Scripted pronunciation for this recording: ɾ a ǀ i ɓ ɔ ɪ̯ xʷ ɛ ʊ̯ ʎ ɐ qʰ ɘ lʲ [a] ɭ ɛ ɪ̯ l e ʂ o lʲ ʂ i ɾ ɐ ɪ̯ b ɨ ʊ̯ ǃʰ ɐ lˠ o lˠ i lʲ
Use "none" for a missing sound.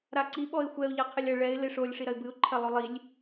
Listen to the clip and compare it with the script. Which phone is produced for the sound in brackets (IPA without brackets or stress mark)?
ɐ